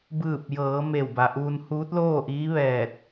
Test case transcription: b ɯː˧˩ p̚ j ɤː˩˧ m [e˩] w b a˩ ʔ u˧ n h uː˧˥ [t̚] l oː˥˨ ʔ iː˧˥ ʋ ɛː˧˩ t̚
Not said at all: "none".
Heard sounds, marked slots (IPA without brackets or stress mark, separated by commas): e˧˩, t̚